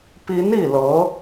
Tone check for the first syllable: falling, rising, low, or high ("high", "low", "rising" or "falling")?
rising